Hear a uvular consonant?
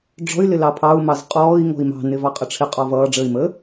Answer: yes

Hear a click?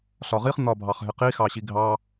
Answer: no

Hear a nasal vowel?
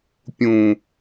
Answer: yes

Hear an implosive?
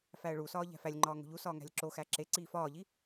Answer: no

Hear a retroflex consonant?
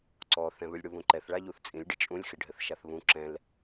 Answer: yes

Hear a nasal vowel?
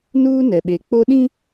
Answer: yes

